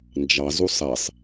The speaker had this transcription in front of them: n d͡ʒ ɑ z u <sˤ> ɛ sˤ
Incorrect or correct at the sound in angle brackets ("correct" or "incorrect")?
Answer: correct